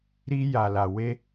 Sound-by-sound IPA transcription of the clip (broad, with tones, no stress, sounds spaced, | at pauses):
ɾ i˧ j a˨ l a˨ w e˧